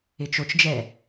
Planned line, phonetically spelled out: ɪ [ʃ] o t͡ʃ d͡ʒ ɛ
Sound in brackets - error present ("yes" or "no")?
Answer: yes